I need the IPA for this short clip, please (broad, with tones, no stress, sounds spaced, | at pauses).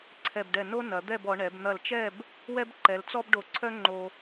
ǀʰ ɛ˧˩ b ɖ ɛ˧˩ n o˥ n ɐ˩˧ d̪ ɛ˥˧ b ɔ˩˧ ɳ ɛ˩˧ b n̪ ɐ˧˩ l t͡ʃ ɛ˥˧ b | w ɛ˥ b ǃ ɛ˩˧ l t͡s ɔ˥ b ɖ o˧˩ ǀʰ œ˥ ŋ͡ǃ o˧